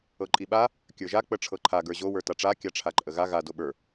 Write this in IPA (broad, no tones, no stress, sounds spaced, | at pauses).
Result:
ɤ ǃʼ i ɓ a | kʲ ə˞ ʒ a k͡p ə ʈ͡ʂʰ ɤ ǃʰ a ɡ ə˞ ʑ o w ə˞ t a ʈ͡ʂ a kʲ a ʈ͡ʂʰ a ǃʼ ə ɣ a ɣ a d o ɓ ə˞